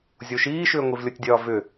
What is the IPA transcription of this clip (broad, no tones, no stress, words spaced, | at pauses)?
zʲoʃiːʃʏː ŋʷivlʲotʲdʲɒːvʏ